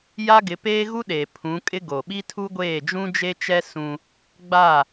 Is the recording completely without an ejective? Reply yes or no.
no